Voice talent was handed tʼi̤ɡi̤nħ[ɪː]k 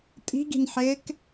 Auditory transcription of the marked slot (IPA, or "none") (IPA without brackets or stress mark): ɪː